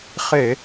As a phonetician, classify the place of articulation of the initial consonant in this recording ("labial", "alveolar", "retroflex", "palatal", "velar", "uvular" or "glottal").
uvular